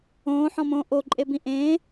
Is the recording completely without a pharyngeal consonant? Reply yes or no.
no